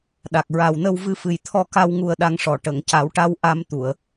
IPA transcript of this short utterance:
ɗa˨˩k̚ɹa˨˩wnə˧w vɨ˧fɨ˨˩jt̪ʰɔ˧ka˧w ŋu˧ə̯ɗa˧ŋʂɔ˨˩ ʈə˨˩˨ŋca˨˩˦wʈa˧w ʔa˧mt̪u˨˩˨ə̯

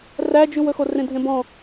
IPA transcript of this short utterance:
ræd͡ʒʉwɵxo rẽdʱẽbɔ̃

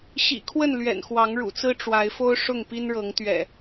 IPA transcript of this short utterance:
ɕḭ˨˩kʰwə˥˨n lɥɛ̰˨˩nxwɑ˨˦ŋɻṵ˨˩t͡sɹ̩˦ ʈ͡ʂwa˨˦ɪ̯ fo˦ʊ̯ ʂʊ˥˨ŋpi˦nɻɤ˨˦ŋ t̪ɥɛ̰˨˩

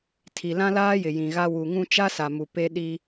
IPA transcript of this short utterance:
tʰi˨lã˦laː˦jɪ˨ jĩ˨ɣa˦ wu˨ŋũ˦ t͡ʃa˦sa˨mu˨ pe˦ɗi˦

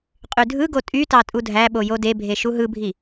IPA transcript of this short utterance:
qʼydʱɯɡo tʼytɑ tʼudʱæɓo jodebʱe ʃuɦɯbʱi

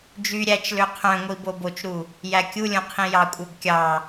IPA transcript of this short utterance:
d͡ʒy ɾʲæt͡ʃlø qʰœ̃ŋʷi bobot͡ʃɾu | jækʲulʲõ qʰĩjɑkʷʼœb kʲɑ

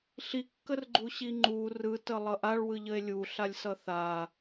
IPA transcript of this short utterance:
ɬikːərɡ͡ǃuɕi ŋ͡ǃu rɯtəlˠʌ ʔaɭwɯʎəe̯ lʲuɬalʲsʌ θa

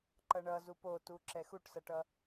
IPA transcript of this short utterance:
ǃʌɳʌzup otu ǁɛxuʈsʌʈʌ

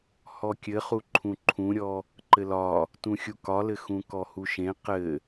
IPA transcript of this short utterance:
hɔkʲɘχu ǃʰũǃʰũɾʲɔ | ǃɘlɒ | tũxʲukɒlɘ xũkɔhuʃẽ qɘ

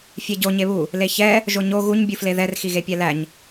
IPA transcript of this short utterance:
fʲɛɟo ɲeβu | leçɛ | ʒoɲo ɣuɲ bʲufleðɛr xiɣepʲælæɲ

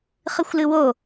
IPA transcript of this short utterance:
χɨxʷlɨwo

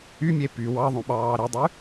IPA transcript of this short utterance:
ymʲe py wɑðˤõɓɑː ɾidˤy

